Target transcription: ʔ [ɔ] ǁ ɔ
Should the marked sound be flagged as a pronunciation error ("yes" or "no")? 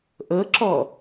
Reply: yes